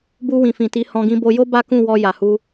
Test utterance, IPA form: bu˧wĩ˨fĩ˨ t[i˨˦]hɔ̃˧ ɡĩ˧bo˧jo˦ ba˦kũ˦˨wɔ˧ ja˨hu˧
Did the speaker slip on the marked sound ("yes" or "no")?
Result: no